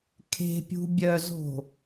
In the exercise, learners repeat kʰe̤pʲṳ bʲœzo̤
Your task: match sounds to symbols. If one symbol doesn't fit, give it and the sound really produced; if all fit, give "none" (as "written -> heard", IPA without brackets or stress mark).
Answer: none